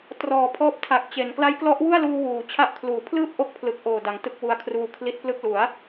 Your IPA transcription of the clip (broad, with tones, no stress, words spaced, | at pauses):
trɔː˩˦pʰɔː˦˥p̚ tʰa˨˩k̚t͡ɕe˩˦n kla˦˥jklɔ˦˥ʔwu˥˩a̯luː˧ wuː˩˦ t͡ɕʰa˦˥ʔkʰluː˩˦ pʰlɯː˥˩p̚ʔo˦˥k̚pʰlɯ˨˩k̚ʔoː˨˩ da˩˦ŋtɯ˦˥k̚wu˧a̯ kʰruː˦˥kʰli˦˥t̚plɯ˥˩k̚ lu˩˦a̯